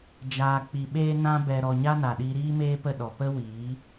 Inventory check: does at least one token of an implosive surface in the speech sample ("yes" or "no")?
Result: yes